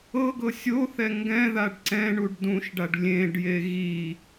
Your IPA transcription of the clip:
ɤ ɡ ɤ sʲ o θ ɛ ŋ ɡ ɛ̃ ð a ɖ ǀ ɛ̃ ɳ u ɖ d ũ ʃ ɖ a ɖ lʲ ẽ ɖ j e ɣ i

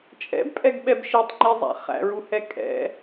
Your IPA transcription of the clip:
t͡ʃʼ ɛ̰ b pʼ ɛ ɡ ɓ ɛ b ʃ i tˤ ŋ͡ǃ i zˤ æ̰ χ æ̰ ɹ u h ɛ kʼ ɛ̰

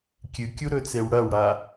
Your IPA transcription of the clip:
kʲ ɨ kʲ u ɾ ɵ t͡s e w ɽ ɐ w ɽ a

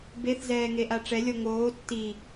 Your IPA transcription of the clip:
b e θ z ɛː ŋ e ʔ a ʈ͡ʂ ɛ lʲ ɔ ŋ oː tː i

